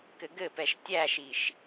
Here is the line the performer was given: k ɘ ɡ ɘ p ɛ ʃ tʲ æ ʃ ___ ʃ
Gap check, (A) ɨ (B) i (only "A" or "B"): B